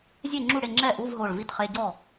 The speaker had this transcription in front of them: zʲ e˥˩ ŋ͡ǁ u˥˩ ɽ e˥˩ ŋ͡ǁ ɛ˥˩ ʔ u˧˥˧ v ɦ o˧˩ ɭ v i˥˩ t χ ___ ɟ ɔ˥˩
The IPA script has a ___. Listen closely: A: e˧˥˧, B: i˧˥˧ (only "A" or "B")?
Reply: A